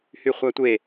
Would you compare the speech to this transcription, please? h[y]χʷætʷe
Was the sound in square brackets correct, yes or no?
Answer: yes